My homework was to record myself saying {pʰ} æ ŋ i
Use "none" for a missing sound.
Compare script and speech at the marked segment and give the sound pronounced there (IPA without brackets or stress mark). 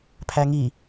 pʰ